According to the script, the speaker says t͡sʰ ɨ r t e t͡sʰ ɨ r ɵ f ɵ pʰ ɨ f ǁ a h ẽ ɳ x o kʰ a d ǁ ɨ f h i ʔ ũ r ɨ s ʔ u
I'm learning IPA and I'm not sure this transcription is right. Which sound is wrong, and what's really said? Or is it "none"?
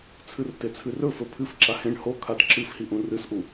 x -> h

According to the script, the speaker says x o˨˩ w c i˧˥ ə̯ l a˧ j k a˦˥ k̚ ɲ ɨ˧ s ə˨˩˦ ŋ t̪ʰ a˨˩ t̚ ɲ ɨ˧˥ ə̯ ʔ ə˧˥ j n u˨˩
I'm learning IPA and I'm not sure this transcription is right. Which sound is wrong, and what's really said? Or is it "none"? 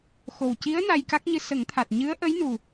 l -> n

